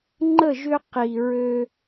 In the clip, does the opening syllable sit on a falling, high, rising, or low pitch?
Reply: falling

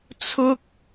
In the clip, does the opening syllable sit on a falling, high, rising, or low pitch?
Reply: high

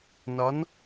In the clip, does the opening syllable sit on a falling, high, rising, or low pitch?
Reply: rising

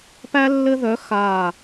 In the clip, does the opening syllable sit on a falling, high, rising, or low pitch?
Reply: high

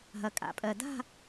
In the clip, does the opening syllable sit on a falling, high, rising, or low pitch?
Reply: low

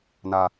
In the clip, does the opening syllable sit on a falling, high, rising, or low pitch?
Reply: high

